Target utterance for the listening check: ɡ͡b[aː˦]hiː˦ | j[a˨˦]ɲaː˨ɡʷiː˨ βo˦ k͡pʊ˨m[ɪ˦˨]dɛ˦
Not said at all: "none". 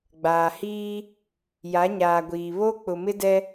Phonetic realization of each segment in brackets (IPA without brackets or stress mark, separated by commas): aː˨, a˨˦, ɪ˦